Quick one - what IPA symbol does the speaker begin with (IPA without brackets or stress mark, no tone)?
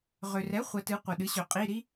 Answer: ʁ